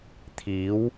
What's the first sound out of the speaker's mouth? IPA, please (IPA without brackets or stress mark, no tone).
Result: t̪ʰ